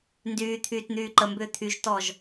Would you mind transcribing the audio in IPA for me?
ndyːt̪ʰyːt n̪yːǃəmbʏː t̪ʰyʒtɔʒ

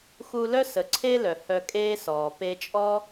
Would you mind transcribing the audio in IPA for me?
xu˧ lœ˥sə˩ǀʰe˥ lœ˩hœ˧ kʼeː˥sɔː˩ pe˧t͡ʃʼɔ˥

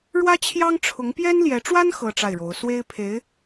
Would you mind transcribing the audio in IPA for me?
ɻwä˥t͡ɕʰjɑ˥ŋʈ͡ʂʰʊ˧˥ŋ pjɛ˥nljɛ˧˥ʈ͡ʂwa˥n xɤ˥ʈ͡ʂa˥˩ɪ̯ɻo˧˥ʊ̯ swe˥ɪ̯pʰe˧˥ɪ̯

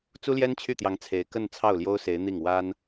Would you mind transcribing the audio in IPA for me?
t͡su˥ljɛ˥nt͡ɕʰy˥˩t̪jɑ˧˥ŋ t͡sʰe˧˥ɪ̯kə˥˧n t͡sʰɑ˥˩ʊ̯ljo˥ʊ̯se˧˥ɪ̯n̪i˥˩ŋ wa˥n

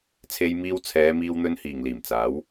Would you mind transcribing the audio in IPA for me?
t͡sʰe˧jmiː˧w t͡sʰɛː˨˧miː˧w n̪ɵ˧nhiː˨˩ŋ liː˨˩mt͡saː˨˥w

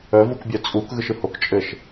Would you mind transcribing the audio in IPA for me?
œv ukbʲœt͡sʼuk ɣɯʃɯhok t͡ʃʼɘʃ

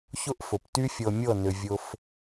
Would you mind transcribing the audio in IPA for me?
çʊ˦ʔfʊ˨pty˦ fʲɤ˧mʲɤ˦˨nʏ˨ vʲʊ˧f

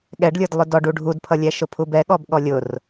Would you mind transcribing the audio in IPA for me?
ɠɛɖlʲə˞d lˠʊdɔɖu ɖʱudpʰʌlʲɛ ʃʊpʰubɛ ɠɔbɠɔlʲʊr

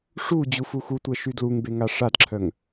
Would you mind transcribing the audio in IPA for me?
ʂu d͡ʑufuxutʷɛ ʃydluŋbe ŋaʂadǁʰœŋ

